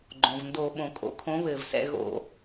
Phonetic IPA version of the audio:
ɡ͡ǃ õ˩ v n d o˧˩˧ ɓ õ˩ kʼ o̰˨˥ kʰ õ˨˥ β ɘː˩ v s ɛ̰˦˨ ɣ o̰˧˩˧

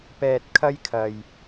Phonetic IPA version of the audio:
p ɛː˧ t̚ kʰ ɐ˥ j kʰ ɐ˧ j

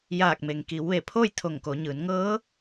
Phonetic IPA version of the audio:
j aː˧˩ k̚ m e˩ ŋ k i˩˧ w ʋ e˧˩ pʰ oː˥˨ j t̪ʰ o˧˩ ŋ k o˩˧ ɲ ɯː˩˧ n ŋ ɤː˧˥

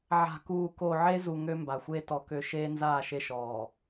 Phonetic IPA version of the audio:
ʕ a̤˨ k uː˨ k o˨ ʕ e˦ z u˨ ŋ ø˦ m b a˨ xʷ eː˦ t ɔ˨ k ø˦ ʃ eː˦ n z aː˦˨ ʃ e˦ ʃ ɔː˨

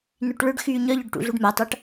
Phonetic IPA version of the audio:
n y ʈ ɭ ʏ ɖ x yː ɲ œ ʎ œ ɖ ʈ ṵ ɮ u ɖ m a tˤ a ʈ

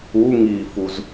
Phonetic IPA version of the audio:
u ŋ i f u z

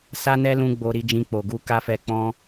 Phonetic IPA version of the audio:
s a˦ n ɛ˦ l ũ˧ ɡ͡b o˧ ɾ i˧ d͡ʒ ĩ˧ k͡p o˨ ɡ u˧ k a˦ f ɛ˧ k͡p ɔ̃˦

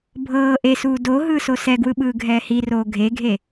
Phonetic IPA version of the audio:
bʱ ɤː ʔ e s uː d o ɦ ɯː s o s ɛ ɡ w ɯ ɓ ɯː ɡʱ ɛː h i r oː ɡʱ e ɡʱ e

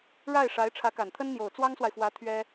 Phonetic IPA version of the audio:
ɻ a˥˩ ɪ̯ ʂ a˧˥ ɪ̯ ʈ͡ʂʰ ä˧˥ k a˨˩ n t̪ʰ ə˥ n n̪ j o˨˩ ʊ̯ t͡s w ɑ˥ ŋ s w a˨ ɪ̯ f w ä˧˥ t̪ʰ ɥ ɛ˥

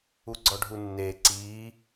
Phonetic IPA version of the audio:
u ɡ͡ǀ ɔ ɖʱ u nː eː ǀ iː

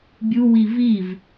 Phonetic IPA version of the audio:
bʲ u w i v i v

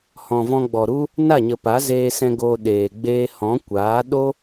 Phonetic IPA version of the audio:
h ɔ̃˨ v ɔ̃˧ ɡ͡b ɔ˨ ɾ u˦ | n a˦˨ ɲ ə˨ p a˨˦ z eː˧ s ɛ̃˧ ɡ o˧ ɗ eː˨ ɡ͡b eː˦ h ɔ̃˨˦ kʷ aː˨˦ ɗ o˦

